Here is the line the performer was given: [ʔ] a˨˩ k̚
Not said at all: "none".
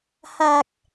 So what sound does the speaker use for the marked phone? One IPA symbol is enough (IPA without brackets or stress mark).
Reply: h